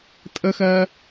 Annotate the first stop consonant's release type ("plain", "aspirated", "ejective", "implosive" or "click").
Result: ejective